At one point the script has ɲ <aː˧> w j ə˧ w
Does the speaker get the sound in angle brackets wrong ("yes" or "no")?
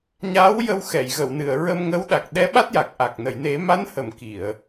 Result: yes